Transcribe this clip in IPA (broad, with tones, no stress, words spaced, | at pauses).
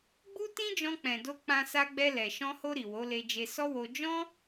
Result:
ɡ͡bu˦ tĩ˦d͡ʒɔ̃˧k͡pɛ̃˨do˧ k͡pã˧sa˧ɡ͡bɛ˧lɛ˨ ʃɔ̃˧ho˧ ɾi˨wo˨˦le˧d͡ʒe˧ sɔ˦wo˧ d͡ʒɔ̃˦